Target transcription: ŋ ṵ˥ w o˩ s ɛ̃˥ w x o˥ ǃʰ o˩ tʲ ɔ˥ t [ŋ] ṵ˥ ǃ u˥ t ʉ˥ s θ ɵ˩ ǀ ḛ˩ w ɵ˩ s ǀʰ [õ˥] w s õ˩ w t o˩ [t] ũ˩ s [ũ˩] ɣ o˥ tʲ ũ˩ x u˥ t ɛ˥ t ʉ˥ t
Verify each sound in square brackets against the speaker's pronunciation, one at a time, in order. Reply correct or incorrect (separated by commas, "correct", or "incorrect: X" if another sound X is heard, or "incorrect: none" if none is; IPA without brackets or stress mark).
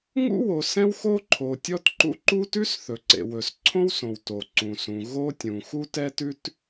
incorrect: ǃ, correct, incorrect: ǀ, correct